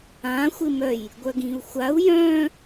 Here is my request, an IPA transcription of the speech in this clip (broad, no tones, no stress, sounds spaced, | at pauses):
ã xʷ ɪ m œ j | ɡʷ œ ɡ ĩ u̯ xʷ a u̯ j œ̃